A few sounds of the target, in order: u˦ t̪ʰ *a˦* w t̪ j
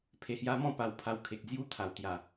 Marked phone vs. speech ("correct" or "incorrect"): incorrect